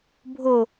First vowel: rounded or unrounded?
rounded